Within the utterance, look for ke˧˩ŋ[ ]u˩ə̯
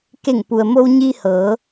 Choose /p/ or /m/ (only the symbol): p